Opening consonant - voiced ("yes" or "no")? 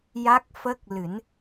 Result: yes